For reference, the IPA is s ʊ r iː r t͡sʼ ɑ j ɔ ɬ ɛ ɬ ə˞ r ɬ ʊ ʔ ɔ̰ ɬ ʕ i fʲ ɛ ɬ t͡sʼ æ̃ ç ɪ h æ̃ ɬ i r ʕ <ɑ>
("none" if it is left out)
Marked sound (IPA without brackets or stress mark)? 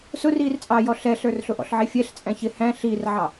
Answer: ɑ